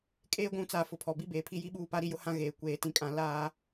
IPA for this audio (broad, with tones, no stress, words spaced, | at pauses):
kʼeː˦ɡʷũ˨˦t͡saː˨ fʊ˨pʰɔ˨bi˦ beː˨pʰi˦ji˦ɓuː˦˨ pa˦ɾi˦jʊ˦hã˦ ɣeː˨ kʷeː˨tĩ˨kʼã˨ laː˦